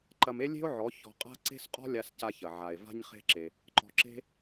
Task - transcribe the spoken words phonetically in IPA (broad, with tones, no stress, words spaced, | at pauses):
ǃɐ˧me˦lʲe̤˦o̯ʕɔ˨˦ çɔ̤˧qʼa̤˦ ǀe̤˦sqʼɔ̤˦ lʲa˧sca˧çɐ˨ ʕa˨e̯ va̤˦ɲχe̤˦ǁe˧ | ǃɔ̤˧ǁe̤˦